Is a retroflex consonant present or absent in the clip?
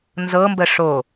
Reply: present